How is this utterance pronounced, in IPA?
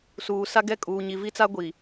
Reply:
s uː˨ s a˦ ɡ ɛ˦ kʼ uː˨ ɲ i˨ v i˦ t͡s a˦ ɡʷ i˨

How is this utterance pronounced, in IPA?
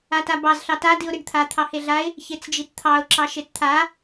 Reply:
a t a b ɑ z ɬ ɑ t a d i ʊ̯ ɾ i ɖ t̪ʰ a t̪ʰ ɑ h e ɮ a ɪ̯ | ç e t͡s d͡ʒ i t t̪ʰ ɑ ʊ̯ ǁ ɑ ʃ e t t̪ʰ a

